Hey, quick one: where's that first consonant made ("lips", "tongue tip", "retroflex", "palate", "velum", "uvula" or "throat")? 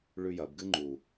retroflex